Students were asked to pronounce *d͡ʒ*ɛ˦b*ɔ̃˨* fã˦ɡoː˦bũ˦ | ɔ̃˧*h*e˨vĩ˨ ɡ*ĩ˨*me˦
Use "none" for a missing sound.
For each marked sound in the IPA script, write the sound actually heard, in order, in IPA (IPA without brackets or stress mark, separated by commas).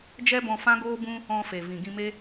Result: d͡ʒ, ɔ̃˧, f, ĩ˧